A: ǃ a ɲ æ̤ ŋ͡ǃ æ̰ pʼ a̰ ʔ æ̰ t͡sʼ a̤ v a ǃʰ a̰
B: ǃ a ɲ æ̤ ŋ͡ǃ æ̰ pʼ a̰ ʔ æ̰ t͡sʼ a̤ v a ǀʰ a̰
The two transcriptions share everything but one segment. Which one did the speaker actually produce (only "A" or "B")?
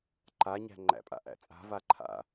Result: A